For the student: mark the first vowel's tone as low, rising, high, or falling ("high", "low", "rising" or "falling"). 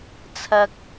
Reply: high